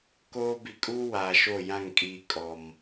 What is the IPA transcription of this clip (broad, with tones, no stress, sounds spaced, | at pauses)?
k oː˦ b i˨ kʼ uː˦ w aː˨ ʃ o˦˨ j ã˦˨ ŋ kʼ iː˨ kʼ ɔ˨ m